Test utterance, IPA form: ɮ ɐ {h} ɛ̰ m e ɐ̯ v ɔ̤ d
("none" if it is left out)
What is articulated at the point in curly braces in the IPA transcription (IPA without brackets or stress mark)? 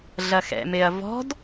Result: x